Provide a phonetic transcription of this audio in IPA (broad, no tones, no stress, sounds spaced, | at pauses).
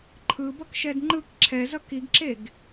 ǃʰ ɯ b ʌ k ʃ ɛ d ŋ͡ǃ ɯ k ǁʰ ɛ z ʌ k i ɡ ǁ e ɡ